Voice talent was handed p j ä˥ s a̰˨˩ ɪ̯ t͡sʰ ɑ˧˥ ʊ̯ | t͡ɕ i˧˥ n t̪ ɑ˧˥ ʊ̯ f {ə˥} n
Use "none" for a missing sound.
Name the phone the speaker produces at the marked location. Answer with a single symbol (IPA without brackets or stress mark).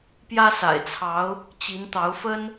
ə˥